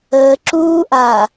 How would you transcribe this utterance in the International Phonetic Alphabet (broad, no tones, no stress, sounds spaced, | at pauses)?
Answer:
əː ǁ uː ʔ aː